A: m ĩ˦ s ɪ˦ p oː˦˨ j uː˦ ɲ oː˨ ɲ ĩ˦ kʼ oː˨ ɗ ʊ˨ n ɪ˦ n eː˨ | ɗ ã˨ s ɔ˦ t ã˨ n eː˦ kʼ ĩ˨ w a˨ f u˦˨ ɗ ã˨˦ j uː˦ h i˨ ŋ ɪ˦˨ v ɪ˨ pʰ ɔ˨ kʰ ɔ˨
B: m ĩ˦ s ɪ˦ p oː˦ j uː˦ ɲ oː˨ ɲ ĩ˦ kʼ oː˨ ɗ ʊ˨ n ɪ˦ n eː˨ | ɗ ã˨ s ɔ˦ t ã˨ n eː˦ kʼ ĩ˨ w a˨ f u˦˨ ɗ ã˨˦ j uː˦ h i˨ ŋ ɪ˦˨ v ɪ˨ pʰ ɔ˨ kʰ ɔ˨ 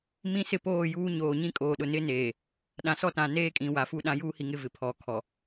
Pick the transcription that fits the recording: A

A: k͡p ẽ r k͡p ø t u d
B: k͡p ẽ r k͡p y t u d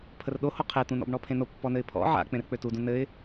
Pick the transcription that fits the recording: A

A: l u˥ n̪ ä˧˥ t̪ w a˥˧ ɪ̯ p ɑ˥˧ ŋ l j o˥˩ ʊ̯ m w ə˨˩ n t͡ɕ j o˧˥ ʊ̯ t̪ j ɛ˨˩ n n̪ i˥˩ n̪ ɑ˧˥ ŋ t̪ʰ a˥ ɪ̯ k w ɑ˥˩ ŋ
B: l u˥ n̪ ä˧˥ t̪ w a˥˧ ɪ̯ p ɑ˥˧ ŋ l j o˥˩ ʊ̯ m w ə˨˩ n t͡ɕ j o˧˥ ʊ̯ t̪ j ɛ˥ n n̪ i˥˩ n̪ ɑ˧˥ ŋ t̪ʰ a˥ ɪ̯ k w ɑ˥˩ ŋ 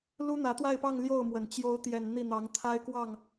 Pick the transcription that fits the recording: A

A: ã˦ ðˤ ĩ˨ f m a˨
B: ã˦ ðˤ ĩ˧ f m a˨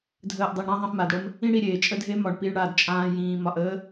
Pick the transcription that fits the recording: B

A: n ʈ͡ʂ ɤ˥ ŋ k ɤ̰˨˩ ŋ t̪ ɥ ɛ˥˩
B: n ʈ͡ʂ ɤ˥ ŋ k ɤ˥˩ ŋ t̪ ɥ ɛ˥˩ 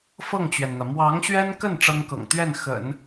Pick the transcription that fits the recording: A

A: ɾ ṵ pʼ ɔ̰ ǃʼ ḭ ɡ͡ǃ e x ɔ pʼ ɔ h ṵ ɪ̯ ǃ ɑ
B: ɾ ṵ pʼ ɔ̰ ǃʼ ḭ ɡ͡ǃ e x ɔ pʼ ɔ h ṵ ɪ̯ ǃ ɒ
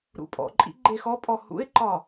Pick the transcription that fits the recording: B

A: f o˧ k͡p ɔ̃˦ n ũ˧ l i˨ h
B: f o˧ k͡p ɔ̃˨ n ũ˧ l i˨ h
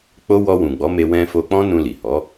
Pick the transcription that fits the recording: A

